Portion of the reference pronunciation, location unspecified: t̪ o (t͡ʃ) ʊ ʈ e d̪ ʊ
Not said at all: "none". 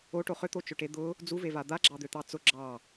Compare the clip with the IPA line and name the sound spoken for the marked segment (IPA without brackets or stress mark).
t͡ʃ